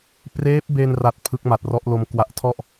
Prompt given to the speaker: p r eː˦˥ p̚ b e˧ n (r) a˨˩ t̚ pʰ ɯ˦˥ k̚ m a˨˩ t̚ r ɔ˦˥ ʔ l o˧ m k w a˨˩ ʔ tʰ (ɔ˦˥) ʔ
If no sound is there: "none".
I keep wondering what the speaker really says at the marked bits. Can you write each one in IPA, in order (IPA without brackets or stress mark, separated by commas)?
r, ɔ˥˩